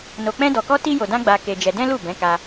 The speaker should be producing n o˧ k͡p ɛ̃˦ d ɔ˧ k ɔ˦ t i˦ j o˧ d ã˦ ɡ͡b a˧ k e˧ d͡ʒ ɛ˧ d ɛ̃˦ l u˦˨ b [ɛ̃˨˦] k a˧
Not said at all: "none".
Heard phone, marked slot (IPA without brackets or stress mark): ɛ̃˨˦